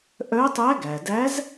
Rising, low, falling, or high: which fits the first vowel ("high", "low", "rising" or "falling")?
rising